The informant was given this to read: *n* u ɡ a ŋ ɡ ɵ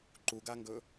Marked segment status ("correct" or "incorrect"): incorrect